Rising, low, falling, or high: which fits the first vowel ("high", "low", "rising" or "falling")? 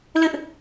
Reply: high